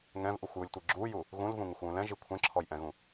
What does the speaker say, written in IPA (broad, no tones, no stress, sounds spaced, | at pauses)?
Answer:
ŋ ɛ̃ v ʔ u xʷ j u lʲ tʷ i ɡ͡ǁ u j u | ɣ ũ l v ũ ŋ ɪ xʷ w ũ l ɛ̃ ʒ i kʷʰ ɛ̃ ǁʰ ɔ j ʔ ɛ̃ ɣ ũ